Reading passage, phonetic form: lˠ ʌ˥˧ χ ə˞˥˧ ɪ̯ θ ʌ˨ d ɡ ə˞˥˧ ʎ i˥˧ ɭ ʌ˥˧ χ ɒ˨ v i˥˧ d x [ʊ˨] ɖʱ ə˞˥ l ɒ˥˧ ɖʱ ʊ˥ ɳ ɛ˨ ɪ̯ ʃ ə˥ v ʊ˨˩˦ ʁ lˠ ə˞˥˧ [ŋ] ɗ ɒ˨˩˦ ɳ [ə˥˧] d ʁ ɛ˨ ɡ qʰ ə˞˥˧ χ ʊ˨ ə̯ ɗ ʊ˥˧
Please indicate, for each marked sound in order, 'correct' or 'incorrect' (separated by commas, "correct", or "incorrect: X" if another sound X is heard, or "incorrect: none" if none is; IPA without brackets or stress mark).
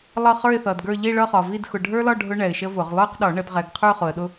correct, incorrect: q, incorrect: ə˨˩˦